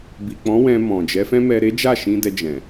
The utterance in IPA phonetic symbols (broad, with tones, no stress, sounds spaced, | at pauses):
b i˨ k͡p ɔ̃˨˦ w ɛ̃˧ m ɔ̃˨ d͡ʒ ɛ˨˦ f ɛ̃˦ m ɛ˧ ɾ e˦ d͡ʒ a˦˨ ʃ ĩ˧ d ɛ˧ d͡ʒ ɛ̃˨